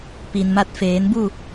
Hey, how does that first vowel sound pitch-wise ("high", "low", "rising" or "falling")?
low